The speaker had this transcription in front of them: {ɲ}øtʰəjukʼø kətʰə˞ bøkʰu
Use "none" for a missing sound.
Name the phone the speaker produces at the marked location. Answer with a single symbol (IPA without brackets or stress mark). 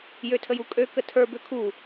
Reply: j